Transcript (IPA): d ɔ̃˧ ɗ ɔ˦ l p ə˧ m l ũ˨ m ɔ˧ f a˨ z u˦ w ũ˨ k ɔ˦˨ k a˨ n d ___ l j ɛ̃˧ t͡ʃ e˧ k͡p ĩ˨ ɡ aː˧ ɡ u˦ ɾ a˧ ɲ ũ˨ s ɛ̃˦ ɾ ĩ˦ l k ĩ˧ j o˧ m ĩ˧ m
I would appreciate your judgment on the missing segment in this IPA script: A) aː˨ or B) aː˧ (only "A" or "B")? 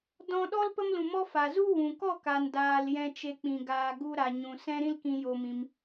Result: B